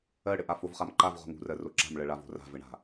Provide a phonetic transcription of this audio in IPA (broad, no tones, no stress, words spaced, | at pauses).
ɜɽɘʔa fovχamǃav ʁo̤ŋṳrɜ roǁa̤mɭɜ ɭavo̤ra̤ vɘɳa̤